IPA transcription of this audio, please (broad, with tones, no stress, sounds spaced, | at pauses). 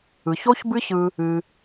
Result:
ɯ˨ ç o˦ ç b ɨ˦ ç ɯ˧ | ɨ˧